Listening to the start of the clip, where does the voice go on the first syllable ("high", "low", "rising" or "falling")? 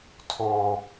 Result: high